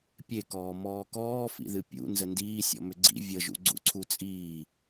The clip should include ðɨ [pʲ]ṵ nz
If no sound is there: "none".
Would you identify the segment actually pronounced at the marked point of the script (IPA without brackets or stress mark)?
pʲ